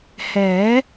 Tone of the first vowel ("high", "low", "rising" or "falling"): rising